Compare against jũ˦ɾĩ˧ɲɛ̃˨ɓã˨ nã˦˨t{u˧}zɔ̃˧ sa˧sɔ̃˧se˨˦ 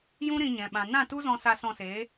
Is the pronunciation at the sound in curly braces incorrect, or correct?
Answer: incorrect: u˦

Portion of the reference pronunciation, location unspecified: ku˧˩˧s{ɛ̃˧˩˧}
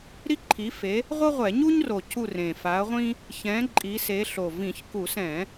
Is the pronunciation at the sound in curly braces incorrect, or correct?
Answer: correct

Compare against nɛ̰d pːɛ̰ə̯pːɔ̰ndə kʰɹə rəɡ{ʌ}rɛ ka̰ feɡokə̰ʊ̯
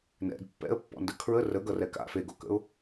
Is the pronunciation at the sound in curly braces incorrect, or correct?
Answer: correct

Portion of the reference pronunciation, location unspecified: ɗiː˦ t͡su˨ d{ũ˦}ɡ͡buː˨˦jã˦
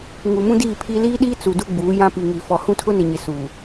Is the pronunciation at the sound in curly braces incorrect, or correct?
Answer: incorrect: u˦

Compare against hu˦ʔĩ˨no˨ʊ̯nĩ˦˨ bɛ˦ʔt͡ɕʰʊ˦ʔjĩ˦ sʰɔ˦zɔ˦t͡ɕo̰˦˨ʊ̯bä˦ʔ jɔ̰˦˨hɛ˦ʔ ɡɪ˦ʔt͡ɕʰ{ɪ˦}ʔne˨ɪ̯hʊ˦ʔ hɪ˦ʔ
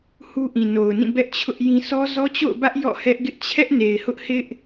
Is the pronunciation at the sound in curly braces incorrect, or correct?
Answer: incorrect: ɛ˦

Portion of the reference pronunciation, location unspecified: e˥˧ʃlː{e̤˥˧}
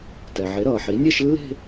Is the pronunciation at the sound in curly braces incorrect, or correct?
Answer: correct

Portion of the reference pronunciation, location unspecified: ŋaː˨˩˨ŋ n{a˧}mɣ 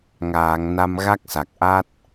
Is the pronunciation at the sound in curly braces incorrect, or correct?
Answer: correct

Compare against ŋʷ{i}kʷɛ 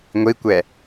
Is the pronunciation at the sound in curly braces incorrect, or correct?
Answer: correct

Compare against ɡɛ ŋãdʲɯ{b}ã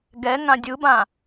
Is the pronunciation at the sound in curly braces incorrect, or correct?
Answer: correct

